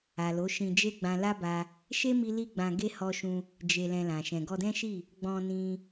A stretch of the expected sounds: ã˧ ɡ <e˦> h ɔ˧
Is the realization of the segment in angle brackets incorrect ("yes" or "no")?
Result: no